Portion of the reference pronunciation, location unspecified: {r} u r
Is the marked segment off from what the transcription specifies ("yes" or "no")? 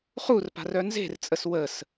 yes